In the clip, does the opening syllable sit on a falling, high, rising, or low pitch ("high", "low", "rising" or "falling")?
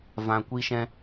low